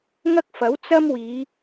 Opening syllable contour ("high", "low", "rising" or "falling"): high